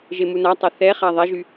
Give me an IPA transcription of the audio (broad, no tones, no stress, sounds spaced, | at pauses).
ʒ e m u n a tˤ ɛ θ ɛ χ a ðˤ ɛ ʒ y